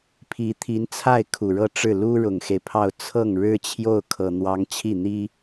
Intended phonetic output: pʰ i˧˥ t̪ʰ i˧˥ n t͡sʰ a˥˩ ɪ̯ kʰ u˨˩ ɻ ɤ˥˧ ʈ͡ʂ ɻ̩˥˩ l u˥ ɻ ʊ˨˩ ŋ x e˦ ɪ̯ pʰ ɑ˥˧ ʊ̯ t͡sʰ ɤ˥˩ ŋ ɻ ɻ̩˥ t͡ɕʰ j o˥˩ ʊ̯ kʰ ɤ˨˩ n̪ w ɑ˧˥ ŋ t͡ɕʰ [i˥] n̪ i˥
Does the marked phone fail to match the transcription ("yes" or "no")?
yes